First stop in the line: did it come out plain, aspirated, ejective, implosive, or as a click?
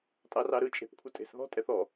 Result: ejective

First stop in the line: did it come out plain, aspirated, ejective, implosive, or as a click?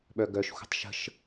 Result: implosive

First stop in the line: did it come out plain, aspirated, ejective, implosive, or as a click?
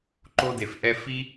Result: click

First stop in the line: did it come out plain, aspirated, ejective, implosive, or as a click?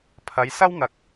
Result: aspirated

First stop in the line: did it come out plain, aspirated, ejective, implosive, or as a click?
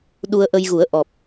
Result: implosive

